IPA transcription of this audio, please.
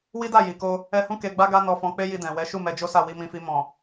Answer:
w i˦ d a˦˨ j i˨ k o˧ | ɛ˧ h ũ˦ k e˧ ɡ͡b a˦ ɡ a˦ n ɔ˧ f ɔ̃˧ k͡p e˦ j i˧ d ɛ̃˨ w ɛ˨˦ ʃ u˦˨ m ɛ˧ d͡ʒ o˦ s a˦˨ w i˧ m ĩ˧ f i˧ m ɔ̃˨

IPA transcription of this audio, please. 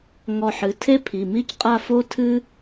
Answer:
ŋ ɔ˧ ħ ɨ˩˧˩ tʰ e˥ pʰ i˩˧˩ m i˥ c qʼ a˥˧ f o˥ tʰ ɨ˥

